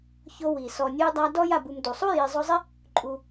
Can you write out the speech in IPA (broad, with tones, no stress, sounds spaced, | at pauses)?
ç o˦ w i˩ s ɔ˨ nʲ u˥ j dˤ a˦ d ɔ˥ j a˨ b u˨ m d u˩ sˤ u˥ j i˨ zˤ o˦ zˤ ɪ˥ | ǃʼ u˨